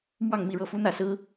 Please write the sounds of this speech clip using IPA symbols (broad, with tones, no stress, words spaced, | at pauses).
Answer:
mwɑ˥˧ŋmi˥˧ɻɤ˥˩fu˥ n̪ä˥˩sɹ̩˥